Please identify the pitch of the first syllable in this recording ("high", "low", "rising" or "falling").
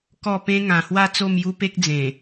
falling